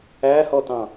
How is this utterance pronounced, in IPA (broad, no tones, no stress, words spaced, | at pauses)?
æhɔtɑ̃